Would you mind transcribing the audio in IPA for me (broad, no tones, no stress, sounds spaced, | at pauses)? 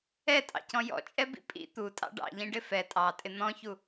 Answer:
ɛ tʼ ɑ̰ c ɔ̃ j ɔ̰ t͡ʃʼ ɛ b ḭ pʼ ḭ t̪ u tʼ ɑ̰ ɖ ɑ̰ ʎ ĩ ɖ ɪ f ɛ tʼ ɑ tʼ ɪ n̪ ɔ̃ ç u